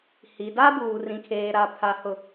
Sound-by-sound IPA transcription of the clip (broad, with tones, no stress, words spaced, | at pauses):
hi˨da˦ buː˨ rĩ˨kʰeː˨ ɾa˨ pʰa˨˦hʊ˨